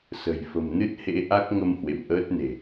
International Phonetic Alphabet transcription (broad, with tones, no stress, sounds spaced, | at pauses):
s ə̤˨˩ j f ə̤˨˩ m n ɨ˦˥ t̚ h ḛ˧˥ ʔ a˦˥ k̚ ŋ ə˧ m h w ḛ˧˨ m ʔ əː˦˥ t̚ n e̤˨˩